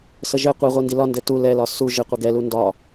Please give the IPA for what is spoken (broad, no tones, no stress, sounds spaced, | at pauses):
s ə ʒ ɘ qʷ i ʁʷ i n d i l ɒ n d ɘ t u l ɛ l ɒ s u ʒ ɘ qʷ ɘ ɡ ɛ l u n d ɒ